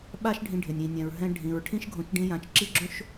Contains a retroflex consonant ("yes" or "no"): yes